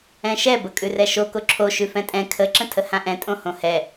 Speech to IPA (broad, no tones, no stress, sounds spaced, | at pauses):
ɛ̃ ʃ ɛ b ə kʼ ʉ r ɛ ʃ o k o ǁʰ o ʃ ʉ f ɛ̃ tʼ ɛ̃ kʰ ə ǁ ə̃ tʰ ə h ã ʔ ɛ̃ tʼ õ h õ h ɛ